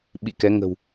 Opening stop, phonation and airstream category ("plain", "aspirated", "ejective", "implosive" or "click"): implosive